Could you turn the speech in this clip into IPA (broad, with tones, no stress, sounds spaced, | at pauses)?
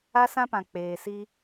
a˦ s ã˦ p ã˨ k͡p eː˨ s i˦